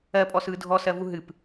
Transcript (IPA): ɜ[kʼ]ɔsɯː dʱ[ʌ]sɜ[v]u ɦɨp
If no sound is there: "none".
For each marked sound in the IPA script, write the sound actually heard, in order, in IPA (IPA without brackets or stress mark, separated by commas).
pʼ, ɔ, v